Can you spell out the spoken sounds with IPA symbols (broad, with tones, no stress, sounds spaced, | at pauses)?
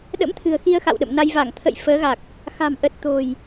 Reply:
ɗ ə̰˧˥ m t̪ʰ ɨ̤˨˩ ə̯ x i˧ ə̯ x a̰˧˨ w ɗ ə̰˧˨ m n a˧ j v a˧˩ ŋ t̪ʰ ə̰˧˨ j f əː˨˦ ɣ a˨˩ k̚ | x a̤˨˩ m ʔ ə˨˩ t̚ t̪ o̤˨˩ j